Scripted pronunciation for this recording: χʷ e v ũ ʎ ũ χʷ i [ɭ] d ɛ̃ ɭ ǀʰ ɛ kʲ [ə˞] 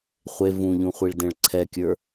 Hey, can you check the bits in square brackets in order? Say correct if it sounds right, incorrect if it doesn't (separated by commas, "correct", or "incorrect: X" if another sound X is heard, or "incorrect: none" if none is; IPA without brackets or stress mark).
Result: correct, correct